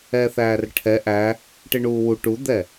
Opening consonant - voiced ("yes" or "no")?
no